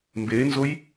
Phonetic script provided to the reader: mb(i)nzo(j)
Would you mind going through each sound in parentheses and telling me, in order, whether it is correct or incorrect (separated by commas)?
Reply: incorrect, correct